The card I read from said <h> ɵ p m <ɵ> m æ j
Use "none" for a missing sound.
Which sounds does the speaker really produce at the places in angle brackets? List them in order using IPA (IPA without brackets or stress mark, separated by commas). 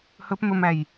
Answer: h, ɵ